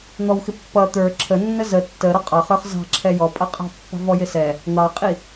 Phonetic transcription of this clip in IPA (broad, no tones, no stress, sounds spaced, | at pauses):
n̪ ɔ w x ɪ pː ʌ t̪ ə˞ ǁʰ ə nː ə z ə tː ə ɾ ɔ qʼ ɑ χ ə˞ χ z ɑ̤ ǁʰ ɛ j ɔ pʼ ʌ qʼ ɑ̤ pː ɑ̤ v ɔ j ɪ s ɛ | n̪ ɑ qʼ i